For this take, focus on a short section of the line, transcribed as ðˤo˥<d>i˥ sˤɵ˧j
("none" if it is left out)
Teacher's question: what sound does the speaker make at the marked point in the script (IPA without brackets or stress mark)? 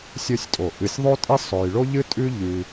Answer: tʼ